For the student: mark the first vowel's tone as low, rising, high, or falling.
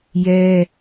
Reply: high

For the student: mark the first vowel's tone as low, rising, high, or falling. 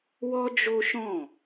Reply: high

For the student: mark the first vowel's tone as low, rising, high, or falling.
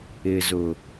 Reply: low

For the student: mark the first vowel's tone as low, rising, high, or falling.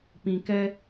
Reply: low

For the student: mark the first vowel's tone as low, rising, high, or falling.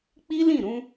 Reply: high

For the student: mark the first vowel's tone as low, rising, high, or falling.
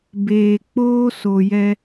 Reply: low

